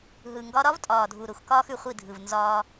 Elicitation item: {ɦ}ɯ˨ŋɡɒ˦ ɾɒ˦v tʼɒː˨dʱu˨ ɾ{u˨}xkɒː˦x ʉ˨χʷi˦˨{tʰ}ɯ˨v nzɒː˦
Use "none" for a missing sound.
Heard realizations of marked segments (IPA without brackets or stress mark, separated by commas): ɦ, u˨, dʱ